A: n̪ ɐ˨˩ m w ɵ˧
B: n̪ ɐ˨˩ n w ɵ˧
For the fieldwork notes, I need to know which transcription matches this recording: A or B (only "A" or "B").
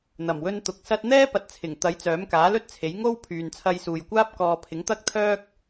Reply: A